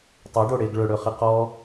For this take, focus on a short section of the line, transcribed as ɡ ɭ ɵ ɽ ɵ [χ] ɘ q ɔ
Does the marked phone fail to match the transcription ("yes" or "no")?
no